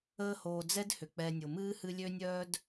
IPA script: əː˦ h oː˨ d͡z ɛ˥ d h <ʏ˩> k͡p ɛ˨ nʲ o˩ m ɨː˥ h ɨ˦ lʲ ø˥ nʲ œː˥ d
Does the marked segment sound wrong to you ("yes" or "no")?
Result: no